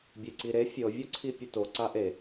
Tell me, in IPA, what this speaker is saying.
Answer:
bʲeǀiɾe fʲɤ vʲɔǀʰipʲeto ǀaʔe

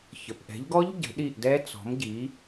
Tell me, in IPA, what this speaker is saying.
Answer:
çə˩˧˩pʔɛ̤˨˦ʎɡɔ˦˥ʎ ɟə̤˨˦ɗi˦˨ʔdɛ˦˥ t͡sɔ̤˨˦mɟi˨˦

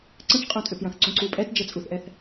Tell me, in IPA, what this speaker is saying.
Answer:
ǀə̃t͡ʃ qʼõtʼʏpjɐ̃θǀũ ǀupʼɛtd͡ʒə t͡sʼuθʔɛθ

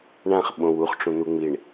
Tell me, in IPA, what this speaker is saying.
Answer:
ɳãχɓõw uχʈ͡ʂũ n̪uŋ͡miɳ

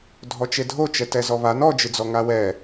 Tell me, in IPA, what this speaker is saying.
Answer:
dʱɔt͡ʃedʱot͡ʃɛ tɛzɔβan ɔd͡ʒɨd͡zɔ ŋawɛ

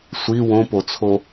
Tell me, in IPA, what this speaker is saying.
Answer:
sʷi wõpot͡sʰo

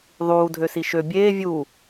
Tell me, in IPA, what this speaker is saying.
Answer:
ðˤuːdʱøsi ʃø bʲeː vʲuː

